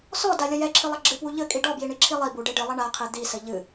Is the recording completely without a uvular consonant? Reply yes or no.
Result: no